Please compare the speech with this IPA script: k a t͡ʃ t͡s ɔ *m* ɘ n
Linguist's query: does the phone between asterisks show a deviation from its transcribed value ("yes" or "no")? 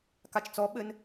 yes